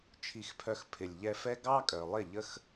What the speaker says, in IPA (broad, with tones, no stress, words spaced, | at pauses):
t͡ʃʰi˨xpʰœ˨x pʰɪ˨lʲʎɛ˧fɛ˦ ɡɑ˦kʼœ˨lˠɪ˦˨ ʎə˦x